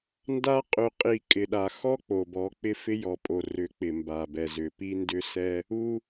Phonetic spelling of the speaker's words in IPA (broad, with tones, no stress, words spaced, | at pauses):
nda˦ qʼʏ˨qʼi˨ kʼɪ˨ɗa˨ xɔ˦ k͡po˨bɔ˨˦k͡pɪ˦fɪ˦ jɔ˨pʼo˨ rʏ˨˦k͡pɪ˨mba˨bɛ˨ zʏ˨pi˦ndʏ˦ sɛ˦ | u˦